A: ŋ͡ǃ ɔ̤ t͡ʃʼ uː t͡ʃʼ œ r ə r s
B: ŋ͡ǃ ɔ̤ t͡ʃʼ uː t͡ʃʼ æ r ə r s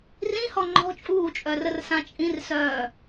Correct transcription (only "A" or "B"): A